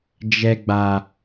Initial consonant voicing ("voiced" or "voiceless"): voiced